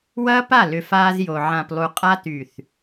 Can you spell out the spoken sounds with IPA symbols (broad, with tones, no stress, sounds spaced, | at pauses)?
w ɐː˦ p a˦˨ l ʏ˨ f aː˧ z j o˨ ʕ ã˨ p lˠ u˨ qʼ a˧ t y˨ θ